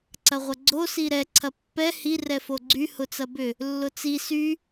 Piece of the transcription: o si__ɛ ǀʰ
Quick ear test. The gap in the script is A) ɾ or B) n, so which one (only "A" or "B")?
A